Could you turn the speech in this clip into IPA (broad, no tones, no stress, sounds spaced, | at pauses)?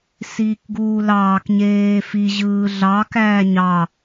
s iː k ɡ uː l ɑː k ɲ eː f i ʑ ɯː ɮ ɑ k æː ɲ ɑ